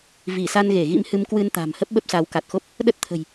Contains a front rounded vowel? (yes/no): no